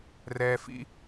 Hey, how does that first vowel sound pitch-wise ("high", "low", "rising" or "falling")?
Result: low